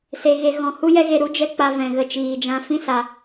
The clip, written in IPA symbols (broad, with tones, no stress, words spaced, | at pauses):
se˧ɣe˧ ɣɔ̃˧hu˦jɛ˦ɣe˧ ɾu˦d͡ʒɛ˦ k͡pa˧vɛ̃˨ɣə˧ t͡ʃiː˨d͡ʒã˧fĩ˦sa˧